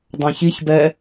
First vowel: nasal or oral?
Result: nasal